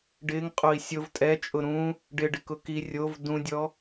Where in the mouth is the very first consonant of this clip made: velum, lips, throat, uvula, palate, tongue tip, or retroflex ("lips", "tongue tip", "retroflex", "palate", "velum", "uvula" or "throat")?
retroflex